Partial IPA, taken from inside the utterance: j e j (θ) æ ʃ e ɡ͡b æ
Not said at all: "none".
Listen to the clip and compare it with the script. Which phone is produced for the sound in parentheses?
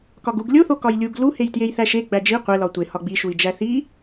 θ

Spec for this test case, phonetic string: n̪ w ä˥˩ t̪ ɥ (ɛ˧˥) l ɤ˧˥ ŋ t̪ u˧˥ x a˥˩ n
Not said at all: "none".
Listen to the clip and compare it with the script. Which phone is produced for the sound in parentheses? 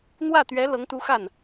ɛ˧˥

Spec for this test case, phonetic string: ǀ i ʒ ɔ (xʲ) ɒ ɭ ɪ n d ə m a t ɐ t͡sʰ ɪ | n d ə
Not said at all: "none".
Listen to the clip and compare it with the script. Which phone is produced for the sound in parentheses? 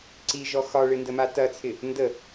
x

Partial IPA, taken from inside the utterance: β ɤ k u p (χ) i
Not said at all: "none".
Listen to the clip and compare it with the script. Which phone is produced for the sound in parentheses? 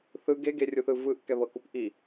ʔ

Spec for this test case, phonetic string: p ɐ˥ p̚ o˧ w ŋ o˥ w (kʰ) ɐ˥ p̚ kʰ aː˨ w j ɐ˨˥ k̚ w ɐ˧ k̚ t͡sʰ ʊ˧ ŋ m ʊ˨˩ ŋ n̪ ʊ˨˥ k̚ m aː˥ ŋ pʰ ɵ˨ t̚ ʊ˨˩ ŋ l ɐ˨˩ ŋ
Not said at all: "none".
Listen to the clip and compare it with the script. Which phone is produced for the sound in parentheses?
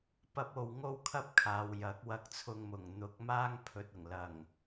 kʰ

